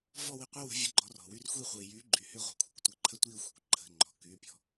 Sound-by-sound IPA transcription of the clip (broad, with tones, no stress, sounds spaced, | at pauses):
v ɔ˦˨ w i˨˥ qʷ i˧˥˧ w ə̤˨˥ vʲ ə˧˥˧ ɡ͡ǃ ɔ˨˥ r ɔ̤˩ w y˧˥˧ r xʷ i˦˨ χʷ i˩ j y˨˥ ɡ͡ǃ y˩˧˩ h y˦˨ ʁʷ ə̤˩˧˩ kʷʰ ə̤˦˨ kʷ tʷ ə˩˧ ǃʰ ə˦˨ tʷ i˦˨ ʊ̯ xʷ ə˨˥ kʷ ǃʰ ə̤˩˧˩ ŋ͡ǃ ɔ̤˩ k y˩˧˩ pʲ ɔ̤˩˧